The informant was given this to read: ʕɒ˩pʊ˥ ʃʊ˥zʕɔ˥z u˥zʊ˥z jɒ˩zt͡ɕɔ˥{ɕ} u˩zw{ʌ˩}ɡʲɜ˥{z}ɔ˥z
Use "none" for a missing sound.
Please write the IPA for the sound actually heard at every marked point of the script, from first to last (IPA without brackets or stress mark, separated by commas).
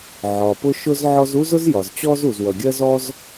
z, ʌ˩, z